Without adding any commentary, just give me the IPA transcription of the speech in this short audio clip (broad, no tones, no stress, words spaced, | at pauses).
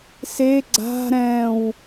se ɡ͡ǀa̤ ɾɛ̃w